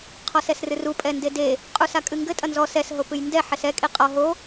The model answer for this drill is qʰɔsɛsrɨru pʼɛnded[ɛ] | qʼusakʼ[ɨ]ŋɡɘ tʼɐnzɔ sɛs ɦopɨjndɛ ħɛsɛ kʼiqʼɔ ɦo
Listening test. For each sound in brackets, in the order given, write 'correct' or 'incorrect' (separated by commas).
incorrect, correct